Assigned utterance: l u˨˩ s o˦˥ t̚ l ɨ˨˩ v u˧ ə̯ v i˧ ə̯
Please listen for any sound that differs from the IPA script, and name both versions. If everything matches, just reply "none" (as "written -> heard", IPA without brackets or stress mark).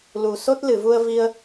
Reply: ɨ˨˩ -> ɨ˨˩˨